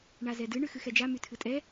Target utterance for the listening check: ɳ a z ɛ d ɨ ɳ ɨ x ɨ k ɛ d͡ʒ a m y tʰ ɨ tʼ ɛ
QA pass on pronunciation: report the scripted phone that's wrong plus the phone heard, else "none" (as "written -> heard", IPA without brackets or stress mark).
k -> x